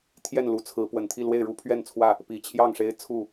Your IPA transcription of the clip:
t̪ʰ j ɛ˥˨ n l u˨˦ t͡sʰ ɹ̩˨˦ p w ə˨˩ n t̪ʰ i˥˨ l w e˥˨ ɪ̯ ɻ u˦ pʰ ɥ ɛ˥˨ n t͡sʰ w ä˥˨ | p i˨˩ t͡ɕʰ j ɑ˥˨ ŋ ʂ e˦ ɪ̯ t͡sʰ u˥˨

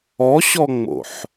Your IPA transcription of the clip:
ɔ ɕ ɔ ŋ͡m o̰ ħ

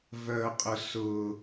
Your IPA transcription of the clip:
v œ qʼ ʊ s ʊ

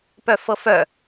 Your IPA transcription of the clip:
p œ f ɤ f œ

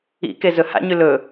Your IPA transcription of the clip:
ḭ k e z ɵ h a̰ ɲ ʉ l ɵ

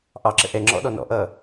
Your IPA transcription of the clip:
ʔ ɑ ǁ ə̰ ʔ ɛ ŋ͡ǁ ɔ̰ ɗ ɔ n ɔ̰ ʔ ʌ

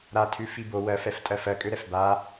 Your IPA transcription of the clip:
ɾ a tʰ ʉ f i b o w ɜ f ɛ f tʼ ɜ f ɜ kʼ ø ɾ ɛ f b a

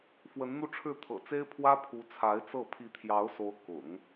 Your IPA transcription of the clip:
f w ə˧˥ n n̪ u˥˧ ʈ͡ʂʰ ɻ̩˥˩ t̪ʰ ɤ̰˨˩ t͡s e˥ ɪ̯ pʰ w ä˥ pʰ u˧˥ t͡sʰ a˧˥ ɪ̯ t͡s ɤ˥˩ pʰ i˧˥ t̪ʰ j ɑ˧˥ ʊ̯ s o˧˥ ʊ̯ k ʊ̰˨˩˦ ŋ

